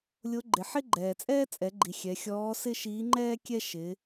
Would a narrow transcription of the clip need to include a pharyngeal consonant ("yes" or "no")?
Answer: yes